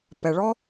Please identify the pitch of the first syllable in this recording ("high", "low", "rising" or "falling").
low